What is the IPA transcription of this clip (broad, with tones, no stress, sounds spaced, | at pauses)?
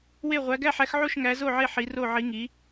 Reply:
w e˥˨ ʁʷ æ˧˥ ɡ æ˥˨ ħ æ˧˥ x ʕ o˥˨ ʃ ŋ æ˧˥ z o˥˨ ʕ e˥˨ ħ i˧˥ r o˥˨ ʕ i˧˥ ŋ i˧˥